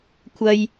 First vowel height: low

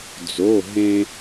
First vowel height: mid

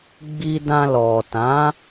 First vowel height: high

